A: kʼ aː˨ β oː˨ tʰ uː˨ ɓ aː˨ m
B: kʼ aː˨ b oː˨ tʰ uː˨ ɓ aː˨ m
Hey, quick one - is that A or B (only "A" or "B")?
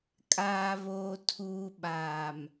A